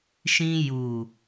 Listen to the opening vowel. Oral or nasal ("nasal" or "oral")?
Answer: nasal